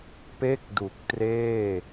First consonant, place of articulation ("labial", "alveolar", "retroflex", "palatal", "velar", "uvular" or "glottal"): labial